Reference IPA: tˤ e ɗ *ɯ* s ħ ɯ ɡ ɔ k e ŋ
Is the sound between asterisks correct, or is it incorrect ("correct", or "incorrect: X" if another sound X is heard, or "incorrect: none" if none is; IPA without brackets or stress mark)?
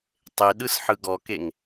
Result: correct